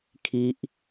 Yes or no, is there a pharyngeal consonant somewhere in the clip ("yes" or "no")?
no